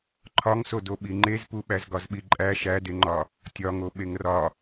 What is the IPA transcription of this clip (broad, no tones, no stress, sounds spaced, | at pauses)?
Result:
ǃʰ ɒ ŋ s o d o ɓ i ŋ͡ǃ e z p u ɓ æ z ɡ ɒ z ɓ i ǃʼ æ ʃ æ d e ŋ͡ǃ ɒ | tʲ ɒ ŋ o ɓ e ŋ r ɒ